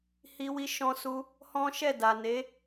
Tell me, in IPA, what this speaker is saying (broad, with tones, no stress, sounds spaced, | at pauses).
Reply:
h i˧ w i˧ ʃ ɔ̃˧ s u˧ | h ɔ̃˦ ʃ ɛ˦˨ d a˨ n e˨˦